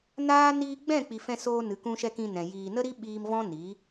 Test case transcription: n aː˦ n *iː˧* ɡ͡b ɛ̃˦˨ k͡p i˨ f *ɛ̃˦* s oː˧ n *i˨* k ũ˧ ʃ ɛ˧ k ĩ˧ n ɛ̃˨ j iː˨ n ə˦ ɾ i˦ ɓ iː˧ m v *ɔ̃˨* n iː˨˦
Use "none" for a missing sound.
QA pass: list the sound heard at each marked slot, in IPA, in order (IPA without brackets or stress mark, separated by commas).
iː˧, ɛ̃˧, ɨ˨, ɔ̃˦